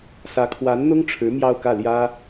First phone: s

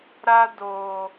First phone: ɾ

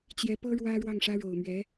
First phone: t͡ɕ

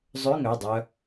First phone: zˤ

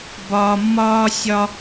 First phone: b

